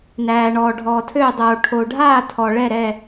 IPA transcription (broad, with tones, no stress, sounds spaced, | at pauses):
n æː˨ ɳ ɔː˨ ɖʱ ɔː˨ tʰ øː˥˨ dˤ oː˨ ʈʰ o˨ ɖʱ aː˥˨ tʰ ɔ˨ ɭ ɛ˥˨ ɾ ɛ˥˨